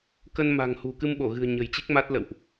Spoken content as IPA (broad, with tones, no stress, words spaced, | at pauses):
kə˧nma̤˨˩ŋhṳ˨˩ kɨ˧mɓo˧˩ɣɨ̤˨˩ə̯ ɲə̤˨˩jt͡ɕi˦˥k̚ma˦˥t̚ lə̰˧˨wʔ